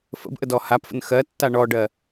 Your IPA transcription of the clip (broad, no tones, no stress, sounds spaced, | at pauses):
f ə̰ b ʔ ə d ɔ h a p f ə̰ n x ɜ tː a ɳ ɔ ɖ ɜ